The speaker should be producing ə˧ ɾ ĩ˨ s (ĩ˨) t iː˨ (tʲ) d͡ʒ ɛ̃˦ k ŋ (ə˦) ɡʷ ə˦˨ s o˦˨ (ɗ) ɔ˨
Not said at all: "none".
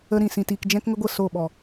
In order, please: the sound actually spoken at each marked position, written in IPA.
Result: ĩ˨, k, ə˦, ɓ

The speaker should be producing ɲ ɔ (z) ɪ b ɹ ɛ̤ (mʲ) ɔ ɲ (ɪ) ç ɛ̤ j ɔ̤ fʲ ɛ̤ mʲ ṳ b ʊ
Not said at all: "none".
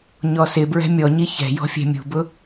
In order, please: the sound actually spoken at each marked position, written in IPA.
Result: s, mʲ, i

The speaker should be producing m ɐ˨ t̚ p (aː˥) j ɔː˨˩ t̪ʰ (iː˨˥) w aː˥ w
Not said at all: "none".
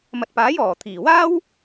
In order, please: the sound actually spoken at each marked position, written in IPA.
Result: aː˨˥, iː˨˩

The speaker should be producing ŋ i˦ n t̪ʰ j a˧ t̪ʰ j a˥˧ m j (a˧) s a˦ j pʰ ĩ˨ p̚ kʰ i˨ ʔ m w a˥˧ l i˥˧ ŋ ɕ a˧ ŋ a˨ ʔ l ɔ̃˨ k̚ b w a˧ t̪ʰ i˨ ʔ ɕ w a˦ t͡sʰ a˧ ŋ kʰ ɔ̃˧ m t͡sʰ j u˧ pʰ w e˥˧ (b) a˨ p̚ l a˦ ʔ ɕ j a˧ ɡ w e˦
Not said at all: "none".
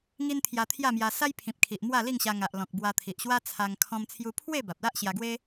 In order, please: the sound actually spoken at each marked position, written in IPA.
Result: a˧, b

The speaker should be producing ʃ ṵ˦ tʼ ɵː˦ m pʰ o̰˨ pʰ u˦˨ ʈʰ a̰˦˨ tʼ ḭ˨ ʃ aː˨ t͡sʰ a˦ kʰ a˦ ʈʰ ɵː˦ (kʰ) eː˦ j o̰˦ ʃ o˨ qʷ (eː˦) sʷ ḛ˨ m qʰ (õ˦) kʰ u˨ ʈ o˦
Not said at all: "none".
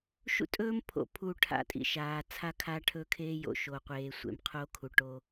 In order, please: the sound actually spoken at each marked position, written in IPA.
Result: kʰ, eː˨, o˦

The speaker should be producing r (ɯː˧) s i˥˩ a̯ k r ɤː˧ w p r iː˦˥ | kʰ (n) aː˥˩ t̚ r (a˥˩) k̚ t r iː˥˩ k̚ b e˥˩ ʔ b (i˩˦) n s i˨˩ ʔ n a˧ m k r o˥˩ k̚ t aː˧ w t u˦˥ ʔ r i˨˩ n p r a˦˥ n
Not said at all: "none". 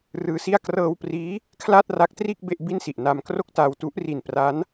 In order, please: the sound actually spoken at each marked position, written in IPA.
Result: ɯː˧, l, a˦˥, i˥˩

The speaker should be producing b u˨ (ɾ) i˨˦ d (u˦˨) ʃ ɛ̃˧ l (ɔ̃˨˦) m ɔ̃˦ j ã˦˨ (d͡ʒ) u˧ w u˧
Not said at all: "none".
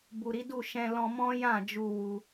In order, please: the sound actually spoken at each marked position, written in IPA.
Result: ɾ, u˦˨, ɔ̃˧, d͡ʒ

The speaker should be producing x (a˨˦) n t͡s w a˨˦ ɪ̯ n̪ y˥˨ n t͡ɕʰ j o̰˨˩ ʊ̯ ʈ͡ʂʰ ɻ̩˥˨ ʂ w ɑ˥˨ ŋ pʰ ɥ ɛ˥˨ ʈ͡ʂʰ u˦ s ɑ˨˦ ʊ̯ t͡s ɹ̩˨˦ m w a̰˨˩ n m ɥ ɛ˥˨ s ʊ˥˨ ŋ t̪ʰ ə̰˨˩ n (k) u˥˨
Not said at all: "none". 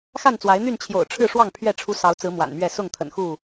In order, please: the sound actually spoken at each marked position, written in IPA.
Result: a˥˨, x

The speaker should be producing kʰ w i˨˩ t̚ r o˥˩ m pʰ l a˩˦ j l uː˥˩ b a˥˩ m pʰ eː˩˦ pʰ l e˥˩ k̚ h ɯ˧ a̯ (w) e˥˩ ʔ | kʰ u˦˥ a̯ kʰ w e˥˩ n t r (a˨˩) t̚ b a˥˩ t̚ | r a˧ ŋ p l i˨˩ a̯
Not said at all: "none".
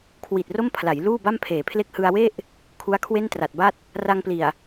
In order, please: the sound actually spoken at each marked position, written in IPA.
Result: w, a˨˩

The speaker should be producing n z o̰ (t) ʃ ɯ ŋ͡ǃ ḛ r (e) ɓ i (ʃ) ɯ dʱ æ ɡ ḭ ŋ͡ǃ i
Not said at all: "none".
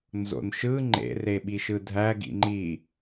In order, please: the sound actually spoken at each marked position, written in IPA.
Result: n, e, ʃ

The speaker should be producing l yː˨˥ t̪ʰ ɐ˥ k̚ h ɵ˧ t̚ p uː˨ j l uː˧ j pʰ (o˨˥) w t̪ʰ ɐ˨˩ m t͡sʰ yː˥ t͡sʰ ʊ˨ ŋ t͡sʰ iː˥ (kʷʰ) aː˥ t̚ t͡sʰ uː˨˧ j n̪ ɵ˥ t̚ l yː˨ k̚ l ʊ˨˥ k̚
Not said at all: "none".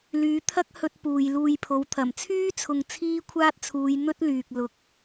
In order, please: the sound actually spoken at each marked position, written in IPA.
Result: o˨˥, kʷʰ

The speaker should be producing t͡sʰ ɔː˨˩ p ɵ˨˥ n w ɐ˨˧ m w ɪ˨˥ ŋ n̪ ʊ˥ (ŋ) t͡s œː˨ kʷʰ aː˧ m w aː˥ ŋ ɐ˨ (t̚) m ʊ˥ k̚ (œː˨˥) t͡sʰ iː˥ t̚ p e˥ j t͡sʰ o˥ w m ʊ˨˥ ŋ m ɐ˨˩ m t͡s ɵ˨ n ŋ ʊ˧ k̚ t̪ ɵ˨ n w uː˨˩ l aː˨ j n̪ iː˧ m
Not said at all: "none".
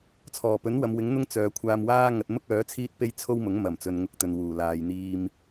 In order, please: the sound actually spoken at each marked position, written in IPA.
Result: ŋ, t̚, œː˨˥

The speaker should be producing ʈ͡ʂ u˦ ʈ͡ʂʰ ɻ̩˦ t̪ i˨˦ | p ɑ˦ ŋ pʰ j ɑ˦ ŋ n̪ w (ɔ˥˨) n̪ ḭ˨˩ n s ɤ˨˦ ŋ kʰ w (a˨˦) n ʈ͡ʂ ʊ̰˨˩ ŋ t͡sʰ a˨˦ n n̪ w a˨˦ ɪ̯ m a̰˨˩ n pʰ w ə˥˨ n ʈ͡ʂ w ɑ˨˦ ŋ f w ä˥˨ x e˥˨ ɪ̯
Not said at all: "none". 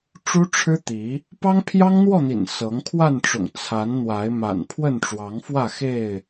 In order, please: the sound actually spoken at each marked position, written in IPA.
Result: ɔ˥˨, a˥˨

